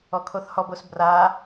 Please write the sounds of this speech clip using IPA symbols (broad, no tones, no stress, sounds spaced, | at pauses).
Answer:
ɔ kʰ o θ h ɔ b o s b r a